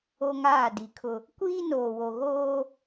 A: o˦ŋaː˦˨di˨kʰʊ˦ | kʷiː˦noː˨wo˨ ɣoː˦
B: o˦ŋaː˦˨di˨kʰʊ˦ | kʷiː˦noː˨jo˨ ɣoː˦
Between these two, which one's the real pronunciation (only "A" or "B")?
A